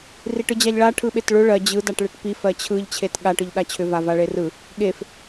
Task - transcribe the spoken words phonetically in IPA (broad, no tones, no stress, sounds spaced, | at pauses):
r i ʈ ɯ d͡ʑ a ʎ ɭ a ʈʰ ɯ ɓ e t ɭ ʏ ɭ ɜ d͡ʑ ɯ d a ʈ ɭ e ʈ p i f ɜ t͡ɕʰ ɯ ʎ t͡ɕʰ e t ɠ a ʈ ɯ ʎ ɗ a t͡ɕʰ ʏ v a v a ɭ e r ɯ | ɠ e f